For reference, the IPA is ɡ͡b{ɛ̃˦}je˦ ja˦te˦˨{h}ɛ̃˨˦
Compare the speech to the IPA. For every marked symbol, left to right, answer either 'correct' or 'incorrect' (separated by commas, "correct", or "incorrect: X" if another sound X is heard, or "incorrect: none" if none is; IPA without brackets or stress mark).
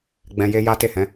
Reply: incorrect: ɛ̃˧, correct